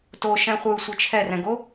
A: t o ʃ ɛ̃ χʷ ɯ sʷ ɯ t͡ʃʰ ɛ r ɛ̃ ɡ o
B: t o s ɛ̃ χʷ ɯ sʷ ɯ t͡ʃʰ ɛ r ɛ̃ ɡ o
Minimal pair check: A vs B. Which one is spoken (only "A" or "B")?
A